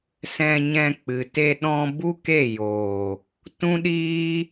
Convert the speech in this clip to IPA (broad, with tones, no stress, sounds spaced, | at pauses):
s ɛ̃˧ ɲ ɛ̃˧ k͡p ɨ˨ t e˧ ɗ ɔ̃˧ b u˦ k e˦˨ j oː˨ | t ũ˦ ɗ iː˦